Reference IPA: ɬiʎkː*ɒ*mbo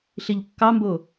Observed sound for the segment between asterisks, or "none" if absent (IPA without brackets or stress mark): ɑ